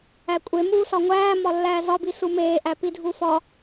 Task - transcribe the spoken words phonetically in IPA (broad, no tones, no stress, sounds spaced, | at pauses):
æ kʷʼ e m uː s ɒ ŋʷ æː m ɒ lː æː z ɒ b i s u m eː ʔ æ p i dʱ u f ɒ